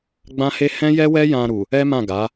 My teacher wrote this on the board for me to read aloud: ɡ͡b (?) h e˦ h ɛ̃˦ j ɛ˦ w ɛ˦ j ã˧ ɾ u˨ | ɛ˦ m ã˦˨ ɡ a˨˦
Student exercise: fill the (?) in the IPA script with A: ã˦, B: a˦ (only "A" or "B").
A